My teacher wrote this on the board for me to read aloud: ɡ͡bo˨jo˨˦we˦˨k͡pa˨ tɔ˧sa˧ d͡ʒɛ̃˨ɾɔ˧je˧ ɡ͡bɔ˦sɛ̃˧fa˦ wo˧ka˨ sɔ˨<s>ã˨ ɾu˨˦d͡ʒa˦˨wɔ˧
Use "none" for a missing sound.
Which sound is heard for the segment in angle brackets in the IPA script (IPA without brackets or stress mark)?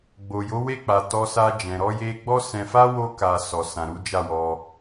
s